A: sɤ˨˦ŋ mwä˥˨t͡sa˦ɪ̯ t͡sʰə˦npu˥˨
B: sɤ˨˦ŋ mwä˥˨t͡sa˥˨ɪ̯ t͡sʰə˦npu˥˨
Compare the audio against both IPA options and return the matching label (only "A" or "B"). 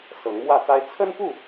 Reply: A